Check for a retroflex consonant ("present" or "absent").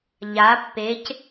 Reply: absent